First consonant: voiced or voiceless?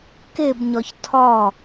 voiceless